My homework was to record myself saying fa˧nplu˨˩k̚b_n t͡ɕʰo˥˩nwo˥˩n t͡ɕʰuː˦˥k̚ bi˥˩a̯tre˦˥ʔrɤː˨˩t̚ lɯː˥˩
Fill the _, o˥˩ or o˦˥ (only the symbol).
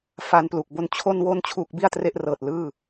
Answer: o˦˥